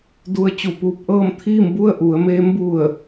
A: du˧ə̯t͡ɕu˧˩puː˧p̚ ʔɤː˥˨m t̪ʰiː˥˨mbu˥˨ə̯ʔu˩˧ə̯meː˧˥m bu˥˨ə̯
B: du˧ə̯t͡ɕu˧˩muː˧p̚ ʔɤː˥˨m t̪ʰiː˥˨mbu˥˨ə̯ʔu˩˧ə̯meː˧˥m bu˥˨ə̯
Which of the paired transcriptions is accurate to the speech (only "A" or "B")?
A